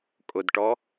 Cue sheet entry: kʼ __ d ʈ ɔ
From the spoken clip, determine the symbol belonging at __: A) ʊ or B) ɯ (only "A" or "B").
A